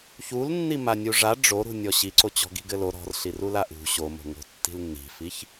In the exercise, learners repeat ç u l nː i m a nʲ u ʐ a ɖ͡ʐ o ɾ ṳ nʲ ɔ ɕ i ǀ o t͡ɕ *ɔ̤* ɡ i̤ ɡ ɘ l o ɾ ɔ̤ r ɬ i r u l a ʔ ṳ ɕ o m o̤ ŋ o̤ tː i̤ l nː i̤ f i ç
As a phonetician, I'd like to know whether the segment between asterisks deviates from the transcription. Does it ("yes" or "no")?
no